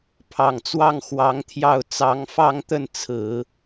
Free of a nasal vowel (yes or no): yes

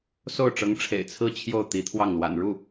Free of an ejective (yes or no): yes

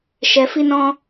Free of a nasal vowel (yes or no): no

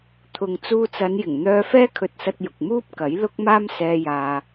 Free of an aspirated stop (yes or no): no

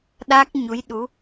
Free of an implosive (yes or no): no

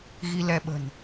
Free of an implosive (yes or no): no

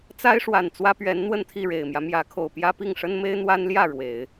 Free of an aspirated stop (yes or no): no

